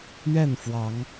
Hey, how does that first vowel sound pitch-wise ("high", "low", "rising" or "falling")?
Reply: falling